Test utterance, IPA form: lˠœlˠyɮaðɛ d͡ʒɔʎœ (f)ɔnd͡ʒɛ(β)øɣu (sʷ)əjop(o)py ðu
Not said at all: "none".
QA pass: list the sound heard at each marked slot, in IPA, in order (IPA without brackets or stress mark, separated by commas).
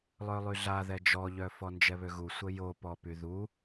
f, β, sʷ, ɔ